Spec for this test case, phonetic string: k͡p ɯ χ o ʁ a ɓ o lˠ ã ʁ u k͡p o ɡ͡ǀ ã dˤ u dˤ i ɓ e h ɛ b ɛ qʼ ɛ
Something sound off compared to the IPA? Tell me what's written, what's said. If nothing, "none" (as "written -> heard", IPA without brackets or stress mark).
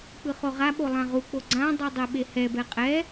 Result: none